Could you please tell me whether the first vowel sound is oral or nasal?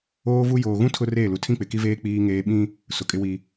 oral